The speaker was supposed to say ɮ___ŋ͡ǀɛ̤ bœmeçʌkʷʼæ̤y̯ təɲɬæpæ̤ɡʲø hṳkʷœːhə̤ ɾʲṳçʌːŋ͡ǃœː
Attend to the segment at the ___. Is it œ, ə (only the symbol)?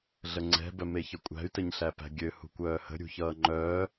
ə